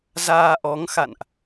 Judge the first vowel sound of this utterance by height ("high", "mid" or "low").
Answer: low